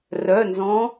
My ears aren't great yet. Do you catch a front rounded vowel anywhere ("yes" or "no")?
yes